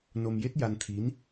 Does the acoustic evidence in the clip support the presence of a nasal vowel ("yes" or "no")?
no